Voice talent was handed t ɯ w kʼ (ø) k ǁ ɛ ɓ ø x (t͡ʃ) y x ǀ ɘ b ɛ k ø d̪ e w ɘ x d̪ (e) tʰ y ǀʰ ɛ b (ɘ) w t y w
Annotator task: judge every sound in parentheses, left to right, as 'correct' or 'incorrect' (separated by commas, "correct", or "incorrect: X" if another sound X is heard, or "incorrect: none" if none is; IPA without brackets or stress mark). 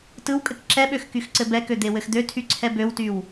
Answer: incorrect: ɘ, incorrect: k, incorrect: ø, incorrect: ø